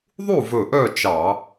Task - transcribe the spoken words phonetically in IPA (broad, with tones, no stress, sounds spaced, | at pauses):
ðˤ u˥˨ v ɵ˧˩ ʔ œ˥˨ t͡ʃ ɑ˧˩˧